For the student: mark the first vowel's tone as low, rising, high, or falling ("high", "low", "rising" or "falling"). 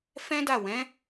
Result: high